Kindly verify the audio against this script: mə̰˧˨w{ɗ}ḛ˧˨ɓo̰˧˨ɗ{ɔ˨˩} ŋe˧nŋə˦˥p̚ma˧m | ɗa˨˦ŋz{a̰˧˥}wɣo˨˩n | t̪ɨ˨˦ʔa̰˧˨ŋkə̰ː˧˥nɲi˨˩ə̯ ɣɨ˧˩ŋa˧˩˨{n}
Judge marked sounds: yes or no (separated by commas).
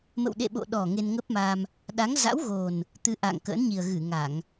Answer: yes, yes, yes, no